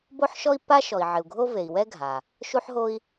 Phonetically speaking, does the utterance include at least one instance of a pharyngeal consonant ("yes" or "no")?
yes